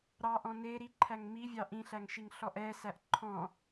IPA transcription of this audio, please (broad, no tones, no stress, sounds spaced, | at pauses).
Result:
ɾ ɑ ʔ ɔ̃ n e ɾ i ǃʰ æ ŋ m i vʲ ɑ ʔ ĩ ɬ æ ŋ ʃ i ŋ ɬ ɔ ʔ ɛ s æ ʔ ǃʰ ɔ̃